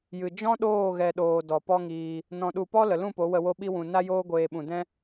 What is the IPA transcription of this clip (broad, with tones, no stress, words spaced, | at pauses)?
jɨ˨ d͡ʒɔ̃˦ɗoː˦˨ ɣɛ˨ɗoː˨ dɔ˨pɔ˦ŋiː˧ | nɔ̃˨ɗu˨pɔ˦ lə˨lũ˦˨po˨˦wə˧ wo˦ɓi˦wũ˧ na˦joː˦ɡʷeː˧ɓũ˨ dɛ̃˦